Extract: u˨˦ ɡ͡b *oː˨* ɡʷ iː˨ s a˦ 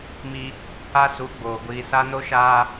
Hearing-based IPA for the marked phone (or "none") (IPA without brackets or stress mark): oː˨